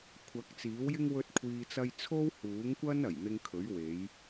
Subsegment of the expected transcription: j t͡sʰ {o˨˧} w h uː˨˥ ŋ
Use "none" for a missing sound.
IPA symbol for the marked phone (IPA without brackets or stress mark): o˥